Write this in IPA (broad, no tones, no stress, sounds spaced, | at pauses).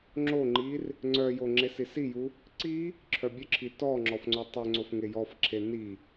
ŋ͡ǁ o ŋ͡ǃ i r | ŋ͡ǀ œ j o ŋ͡ǁ e s i s i j u | ǀ i | ǁʰ œ bʲ œ ǁʰ i t ɔ ŋ͡ǁ ɔ f ŋ͡ǀ o tˤ ø ŋ͡ǀ o f ŋ e j ɔ f ǁʰ e n i